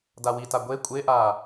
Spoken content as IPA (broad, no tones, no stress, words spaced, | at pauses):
dawita ɡʷe kʷʼeʔaː